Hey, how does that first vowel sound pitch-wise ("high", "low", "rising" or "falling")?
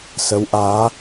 rising